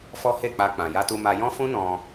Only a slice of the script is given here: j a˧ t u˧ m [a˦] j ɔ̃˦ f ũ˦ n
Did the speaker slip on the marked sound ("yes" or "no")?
yes